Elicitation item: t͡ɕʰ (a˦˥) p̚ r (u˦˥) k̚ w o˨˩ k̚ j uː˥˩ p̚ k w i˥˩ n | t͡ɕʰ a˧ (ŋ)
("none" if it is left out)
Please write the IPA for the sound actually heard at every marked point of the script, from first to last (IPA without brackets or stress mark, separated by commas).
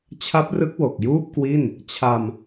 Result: a˦˥, ɯ˦˥, m